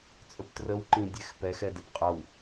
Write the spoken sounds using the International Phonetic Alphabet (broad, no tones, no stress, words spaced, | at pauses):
t͡sʼɵptrəwǃĩ dʲɛxpɛ xɛdɛpqʼʌw